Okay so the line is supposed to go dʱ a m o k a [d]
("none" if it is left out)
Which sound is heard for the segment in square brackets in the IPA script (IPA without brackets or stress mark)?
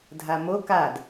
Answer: d